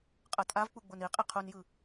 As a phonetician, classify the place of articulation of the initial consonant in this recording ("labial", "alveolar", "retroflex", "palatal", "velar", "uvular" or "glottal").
uvular